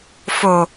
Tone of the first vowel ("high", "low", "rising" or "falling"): low